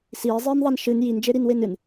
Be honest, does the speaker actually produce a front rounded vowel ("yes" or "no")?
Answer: no